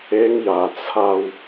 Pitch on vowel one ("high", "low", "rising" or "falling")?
high